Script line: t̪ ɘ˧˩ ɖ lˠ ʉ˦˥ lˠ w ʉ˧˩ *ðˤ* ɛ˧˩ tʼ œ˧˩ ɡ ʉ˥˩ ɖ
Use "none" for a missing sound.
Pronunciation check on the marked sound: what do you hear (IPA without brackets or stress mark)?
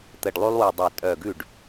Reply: dˤ